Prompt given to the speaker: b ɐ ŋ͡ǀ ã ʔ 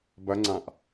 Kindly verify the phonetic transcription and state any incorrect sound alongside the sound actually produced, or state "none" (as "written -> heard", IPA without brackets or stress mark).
none